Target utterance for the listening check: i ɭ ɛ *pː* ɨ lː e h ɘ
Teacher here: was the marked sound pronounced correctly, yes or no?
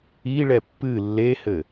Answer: yes